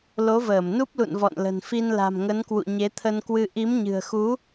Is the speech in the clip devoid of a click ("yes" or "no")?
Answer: yes